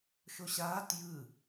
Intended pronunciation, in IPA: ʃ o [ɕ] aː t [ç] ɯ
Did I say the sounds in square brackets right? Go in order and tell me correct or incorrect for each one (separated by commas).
correct, incorrect